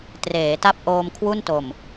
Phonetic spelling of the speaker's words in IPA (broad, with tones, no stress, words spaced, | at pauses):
treː˩˦ ta˥˩p̚ʔoː˧mkʰwu˥˩nto˨˩m